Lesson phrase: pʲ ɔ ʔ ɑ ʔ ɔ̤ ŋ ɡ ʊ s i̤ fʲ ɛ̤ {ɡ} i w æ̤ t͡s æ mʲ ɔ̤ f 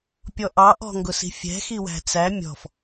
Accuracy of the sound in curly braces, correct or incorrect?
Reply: incorrect